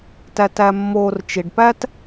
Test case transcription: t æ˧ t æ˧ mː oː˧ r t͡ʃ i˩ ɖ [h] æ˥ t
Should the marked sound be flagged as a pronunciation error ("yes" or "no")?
yes